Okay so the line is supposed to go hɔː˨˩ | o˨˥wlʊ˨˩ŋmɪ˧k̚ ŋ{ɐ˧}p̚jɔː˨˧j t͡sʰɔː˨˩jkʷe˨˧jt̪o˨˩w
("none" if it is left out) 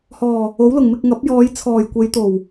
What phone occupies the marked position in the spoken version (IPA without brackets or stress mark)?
ɐ˨˥